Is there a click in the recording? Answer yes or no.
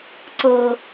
yes